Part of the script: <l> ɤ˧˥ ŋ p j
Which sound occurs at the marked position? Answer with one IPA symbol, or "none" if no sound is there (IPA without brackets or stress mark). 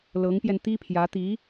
l